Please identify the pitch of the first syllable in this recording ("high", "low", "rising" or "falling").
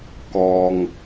low